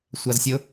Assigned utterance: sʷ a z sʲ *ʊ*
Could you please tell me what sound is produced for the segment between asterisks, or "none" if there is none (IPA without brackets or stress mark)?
ʊ